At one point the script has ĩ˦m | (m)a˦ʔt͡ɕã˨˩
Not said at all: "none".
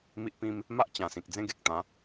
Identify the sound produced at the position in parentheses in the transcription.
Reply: m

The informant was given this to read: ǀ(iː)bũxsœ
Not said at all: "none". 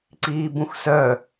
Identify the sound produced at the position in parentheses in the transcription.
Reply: iː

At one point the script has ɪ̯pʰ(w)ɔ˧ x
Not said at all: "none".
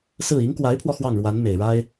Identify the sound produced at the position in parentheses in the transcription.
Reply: w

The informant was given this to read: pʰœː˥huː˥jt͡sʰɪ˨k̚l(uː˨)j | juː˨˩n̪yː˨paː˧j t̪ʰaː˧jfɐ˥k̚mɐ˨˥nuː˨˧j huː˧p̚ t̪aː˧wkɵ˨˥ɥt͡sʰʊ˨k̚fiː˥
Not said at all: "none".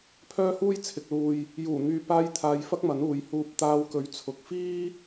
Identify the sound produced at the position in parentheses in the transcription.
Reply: uː˨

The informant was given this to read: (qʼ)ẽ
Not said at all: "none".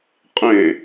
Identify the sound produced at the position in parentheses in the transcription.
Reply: qʼ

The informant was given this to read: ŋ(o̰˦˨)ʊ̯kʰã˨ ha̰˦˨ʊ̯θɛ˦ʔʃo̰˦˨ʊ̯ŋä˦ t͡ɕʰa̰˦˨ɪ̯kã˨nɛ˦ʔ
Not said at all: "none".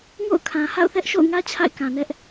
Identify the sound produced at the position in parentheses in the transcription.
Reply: o̰˦˨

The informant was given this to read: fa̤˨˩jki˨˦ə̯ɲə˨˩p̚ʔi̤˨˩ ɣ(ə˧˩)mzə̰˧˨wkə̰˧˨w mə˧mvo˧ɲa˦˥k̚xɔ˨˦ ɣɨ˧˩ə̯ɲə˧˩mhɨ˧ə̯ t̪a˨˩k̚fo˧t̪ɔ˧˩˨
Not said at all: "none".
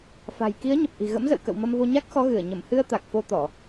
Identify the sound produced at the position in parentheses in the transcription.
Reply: ə̰˧˥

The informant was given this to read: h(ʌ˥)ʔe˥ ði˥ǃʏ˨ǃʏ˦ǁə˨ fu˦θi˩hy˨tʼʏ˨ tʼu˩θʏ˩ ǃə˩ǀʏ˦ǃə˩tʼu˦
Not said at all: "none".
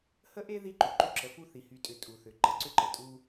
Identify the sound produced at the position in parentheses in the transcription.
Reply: ə˥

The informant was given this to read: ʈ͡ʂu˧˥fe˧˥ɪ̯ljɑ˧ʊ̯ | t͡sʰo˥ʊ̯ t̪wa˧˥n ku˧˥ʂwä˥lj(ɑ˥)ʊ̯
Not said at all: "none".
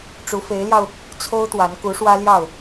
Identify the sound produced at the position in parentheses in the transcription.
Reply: ɑ˥˩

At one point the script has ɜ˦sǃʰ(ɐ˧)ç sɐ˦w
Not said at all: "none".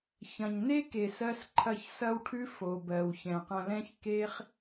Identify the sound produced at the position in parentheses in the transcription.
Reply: ɐ˦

